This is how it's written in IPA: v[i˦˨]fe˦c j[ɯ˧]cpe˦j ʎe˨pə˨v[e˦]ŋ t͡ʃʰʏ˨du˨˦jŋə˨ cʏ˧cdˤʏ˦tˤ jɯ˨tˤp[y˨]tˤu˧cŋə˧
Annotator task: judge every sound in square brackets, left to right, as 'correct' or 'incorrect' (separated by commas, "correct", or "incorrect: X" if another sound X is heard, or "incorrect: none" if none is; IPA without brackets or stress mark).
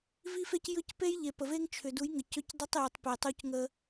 incorrect: i˦, correct, correct, incorrect: e˨